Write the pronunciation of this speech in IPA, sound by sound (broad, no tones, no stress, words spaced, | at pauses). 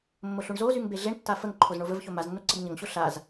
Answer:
mːoɬuɳzozyŋ beɮeɳtːa fəŋ ǃʰozɳovəvço maznːo ǀəbɲəŋɕo ɬaz